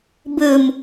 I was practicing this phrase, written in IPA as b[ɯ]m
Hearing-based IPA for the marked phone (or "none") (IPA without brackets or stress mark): ɯ